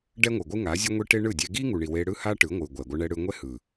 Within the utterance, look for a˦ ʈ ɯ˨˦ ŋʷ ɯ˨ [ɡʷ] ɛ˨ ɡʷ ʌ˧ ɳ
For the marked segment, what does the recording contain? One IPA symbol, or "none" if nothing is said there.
ɡʷ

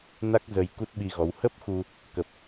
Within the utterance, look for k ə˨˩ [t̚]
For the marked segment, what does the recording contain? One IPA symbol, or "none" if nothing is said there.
p̚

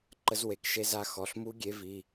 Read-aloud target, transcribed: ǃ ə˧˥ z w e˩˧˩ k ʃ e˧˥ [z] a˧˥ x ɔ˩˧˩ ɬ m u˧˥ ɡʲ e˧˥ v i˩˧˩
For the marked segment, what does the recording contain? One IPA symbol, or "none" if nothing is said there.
z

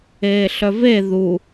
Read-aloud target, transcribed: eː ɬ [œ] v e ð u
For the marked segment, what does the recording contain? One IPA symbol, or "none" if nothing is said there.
œ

